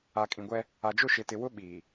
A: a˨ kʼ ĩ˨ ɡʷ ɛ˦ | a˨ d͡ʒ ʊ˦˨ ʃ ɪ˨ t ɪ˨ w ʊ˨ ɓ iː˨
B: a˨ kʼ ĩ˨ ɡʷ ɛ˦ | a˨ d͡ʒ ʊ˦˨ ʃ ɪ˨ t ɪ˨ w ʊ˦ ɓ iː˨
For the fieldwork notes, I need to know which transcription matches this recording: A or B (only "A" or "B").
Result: B